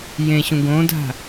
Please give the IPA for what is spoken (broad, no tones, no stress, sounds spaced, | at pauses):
j ẽ ɕ ũ ɡ õ dʱ a̤